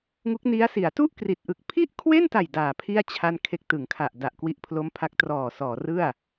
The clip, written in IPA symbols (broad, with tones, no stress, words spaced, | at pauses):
ŋu˦˥k̚ni˦˥a̯si˩˦a̯ tu˥˩ʔkri˨˩t̚ʔɯ˨˩k̚ pʰi˥˩ʔkʰwe˥˩nta˨˩j daː˨˩pʰi˥˩a̯ t͡ɕʰa˥˩nkʰe˥˩k̚ tɯ˩˦ŋkʰa˨˩ʔda˨˩ʔ kwi˦˥ʔpʰlo˦˥mpʰa˦˥k̚ trɔː˨˩sɔː˩˦rɯ˥˩a̯